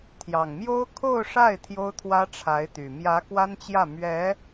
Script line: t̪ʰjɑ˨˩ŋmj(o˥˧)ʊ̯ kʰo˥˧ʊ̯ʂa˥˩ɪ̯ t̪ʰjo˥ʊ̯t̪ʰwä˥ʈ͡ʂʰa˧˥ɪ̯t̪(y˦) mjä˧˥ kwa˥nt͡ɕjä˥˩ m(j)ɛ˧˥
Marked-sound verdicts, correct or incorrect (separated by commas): incorrect, incorrect, incorrect